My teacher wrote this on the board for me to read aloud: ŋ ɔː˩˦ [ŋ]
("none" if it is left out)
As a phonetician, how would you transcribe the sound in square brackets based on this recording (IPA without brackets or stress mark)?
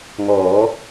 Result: none